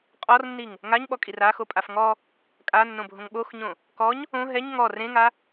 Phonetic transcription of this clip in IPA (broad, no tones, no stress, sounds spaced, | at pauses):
qʼ ɔ r nː i ŋ | ŋ a ɲ ɓ ɔ kʼ i r a x o pʼ a f ŋ ɔ | kʼ a nː õ bʱ õ ŋ ɓ o x ɲ õ | k ɔ ɲ | õ ɦ ɛ ɲ ŋ ɔ r ẽ ŋ a